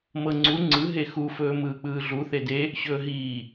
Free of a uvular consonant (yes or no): yes